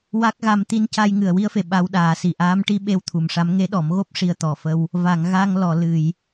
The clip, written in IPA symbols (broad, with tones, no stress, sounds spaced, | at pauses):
w a˦˥ k̚ ɣ a˧ m t̪ i˧ n c a˧ j ŋ ɨ˨˩ ə̯ w i˧ ə̯ f e˨˩˨ ɓ a˧˥ w ɗ aː˨˩˦ s i˨˩ ʔ aː˧˥ m ʈ i˧˥ ɓ e˧ w t̪ʰ u˨˩ m ʂ a˧˥ m ŋ e˧˥ ɗ ɔ˨˩˦ m ɣ o˦˥ p̚ ʂ i˧ ə̯ t̪ ɔ˨˩ f ə˧ w | v a˨˩˨ ŋ ɣ a˧ ŋ l ɔ˨˩˨ l ɨ˨˩˨ j